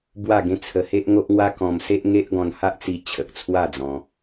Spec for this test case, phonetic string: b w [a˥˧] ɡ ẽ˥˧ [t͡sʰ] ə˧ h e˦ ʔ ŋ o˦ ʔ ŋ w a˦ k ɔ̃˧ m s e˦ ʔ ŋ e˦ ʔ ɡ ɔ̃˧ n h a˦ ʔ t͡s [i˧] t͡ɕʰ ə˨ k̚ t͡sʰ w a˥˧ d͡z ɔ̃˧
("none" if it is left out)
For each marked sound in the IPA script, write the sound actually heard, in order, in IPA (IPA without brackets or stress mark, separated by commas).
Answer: a˥˧, t͡sʰ, i˧